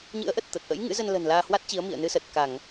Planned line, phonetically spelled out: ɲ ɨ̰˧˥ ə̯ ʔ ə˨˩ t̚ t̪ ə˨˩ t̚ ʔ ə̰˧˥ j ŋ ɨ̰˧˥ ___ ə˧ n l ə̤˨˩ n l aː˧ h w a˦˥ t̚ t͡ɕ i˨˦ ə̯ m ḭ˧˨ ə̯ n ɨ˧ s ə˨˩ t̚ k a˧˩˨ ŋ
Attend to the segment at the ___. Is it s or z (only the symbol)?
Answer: z